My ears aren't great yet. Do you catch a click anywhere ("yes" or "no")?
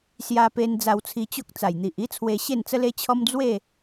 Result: no